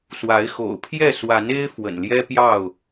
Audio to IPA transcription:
s w a˨˦ ɪ̯ x o̰˨˩ ʊ̯ pʰ j ɛ˥˨ s w a˨˦ n e˦ ɪ̯ f w ə̰˨˩ n l j ɛ˦ p j ɑ˥˨ ʊ̯

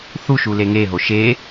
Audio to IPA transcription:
θ u ʃ u l e ŋ e ɦ o ʃ e

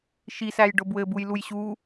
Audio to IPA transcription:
ʃ i s æ j ɖ ʊ b w ɘ b u j l u j ɕ u

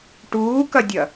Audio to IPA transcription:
ʈ uː k ɐ dʲ ɐ

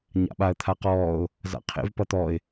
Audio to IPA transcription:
ɲ a̰ ɓ a ə̯ t̪ʰ a q ɔː ʊ̯ | z a̰ qʰ ḛ v p ʌ t̪ ɔ ɪ̯

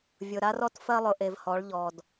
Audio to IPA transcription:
vʲ ʊ˨ ɾ a˦ r ɔ˦ t f ɜ˦ lˠ ʊ˨ ʔ e˨ v h ɔ˨˦ ɭ ʎ ɔ˨ d

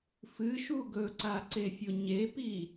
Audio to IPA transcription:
f ɨ ʃ u ɡ ɵ ǀ a ǀ e fʲ o ɲ e p i

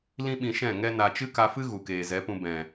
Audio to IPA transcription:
l ĩ˦ ɓ ĩ˧ ʃ ɛ̃˦˨ ŋ ɛ˦ n a˧ t͡ʃ ɨ˦ k a˧ f ɨ˦ ɣ u˨ k eː˨ z ɛ˨˦ p ũ˧ b ɛ̃˨

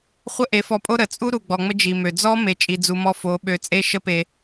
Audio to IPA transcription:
χʷ ə˦ ʔ e˨˦ f ɔ˧ pʼ o˦ ɾ ə˨ t͡sʼ u˦ ɾ u˨ ɡ͡b ɔ˨ ŋ͡m ə˧ d͡ʒ i˨ m ø˨ d͡z ɔ˦ m e˧ t͡ʃʼ i˨ d͡z u˨ m ɔ˧ f o˨˦ ɓ ø˨˦ t͡sʼ e˦ ʃ ə˦ p e˧

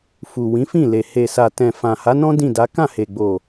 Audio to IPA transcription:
f u˨ w ĩ˨˦ f ĩ˦˨ l e˨ h e˨ s a˨ t ɛ̃˨ f ã˨ h a˨˦ n ɔ̃˦ d ĩ˦˨ d a˨˦ k ã˦˨ h e˨ ɡ͡b o˨

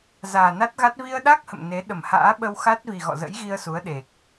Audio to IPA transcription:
z aː˨˩ n a˦˥ t̚ ɣ a˦˥ t̚ v i˧ ə̯ ɗ a˦˥ k̚ h ə̰˧˨ m n e˨˦ ɗ ə˧˩ m h a̰ː˧˥ ɓ ə˧ w x a˦˥ t̚ v i˨˩ ɣ ɔ̰˧˨ z ə̰˧˥ j ɣ i˧ ə̯ s u˨˦ ə̯ ɗ e˨˩ k̚

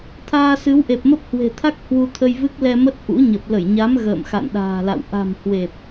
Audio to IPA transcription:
t̪ʰ aː˧ s ɨ˨˦ w ʔ e˨˩ p̚ m ə˦˥ p̚ h w e̤˨˩ t̪ʰ a˦˥ k̚ h w u˧ t̪ʰ ə˧ j v ɨ˦˥ k̚ l ɛ˧ m ə˦˥ t̚ ʔ ṵ˧˥ ɲ ə˨˩ p̚ l ə˧˩ j ɲ a˨˦ m ɣ ə̰ː˧˨ m x a̰˧˨ n ɗ a̤ː˨˩ l a̰˧˨ w ʔ a̤˨˩ m h w e˨˩ p̚

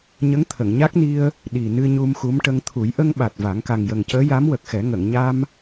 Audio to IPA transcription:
ɲ ə˧˥ ŋ t̪ʰ ə˨˩˨ ŋ ɲ a˦˥ k̚ n i˧ ə̯ | ɗ i˨˩ n ɨ˧ ɲ u˧ m x u˧˥ m ʈ ə˧ ŋ t̪ʰ u˨˩˦ j ʔ ə˧ ŋ ɓ a˨˩ t̚ v a˨˩˦ ŋ k a˨˩ ŋ j ə˨˩ ŋ c əː˧˥ j a˧˥ m w ə˨˩ k̚ x ɛ˨˩˦ ŋ ə˨˩˨ ŋ ɲ a˧ m

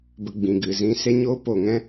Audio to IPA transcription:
b ə˧ ɡ͡b ĩ˨ ɡ ɨ˨ z ĩ˧ s e˦ ɲ oː˦ p o˨ ŋ ɛ̃˦

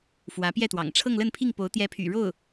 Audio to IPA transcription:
f w ä˧˥ p j ɛ˥˩ t̪ w ɑ̰˨˩ ŋ ʈ͡ʂʰ ɤ˥˧ ŋ l ə˥˧ n pʰ i˥˩ ŋ p o˧˥ ʊ̯ t̪ j ɛ˧˥ pʰ y̰˨˩ ɻ o˥˩ ʊ̯

